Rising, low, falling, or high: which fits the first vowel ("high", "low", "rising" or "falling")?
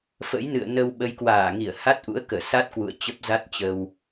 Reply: rising